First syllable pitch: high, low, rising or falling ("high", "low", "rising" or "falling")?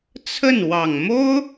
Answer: falling